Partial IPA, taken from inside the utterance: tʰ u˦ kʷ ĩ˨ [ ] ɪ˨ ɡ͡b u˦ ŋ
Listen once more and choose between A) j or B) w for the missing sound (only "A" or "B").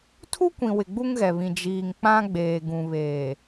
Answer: B